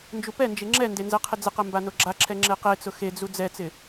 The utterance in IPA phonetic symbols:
n d͡ʒ u p ɛ n d͡ʒ e ŋ͡ǁ ɛ n d e n z ɛ qʰ ɪ d͡z ɪ q ɛ m b a n o ɡ͡ǁ a ǁʰ ɛ ŋ͡ǁ e q e t͡s ʊ x e d͡z u d͡z ɛ t͡s ɪ

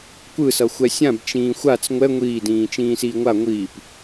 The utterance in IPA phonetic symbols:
kʷ ɯ s ʌ xʷ ɛ sʲ ã b t͡ʃ ĩː xʷ a t͡s ŋʷ ɛ ŋʷ iː d ĩː t͡ʃ ĩː s iː ŋʷ a ŋʷ i p

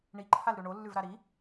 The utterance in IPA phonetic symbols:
ɳ i ǃʰ a l ɾ ʉ ɳ o lː ʉ v ɾ a ɾ i

